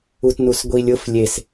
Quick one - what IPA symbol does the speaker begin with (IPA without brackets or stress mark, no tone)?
u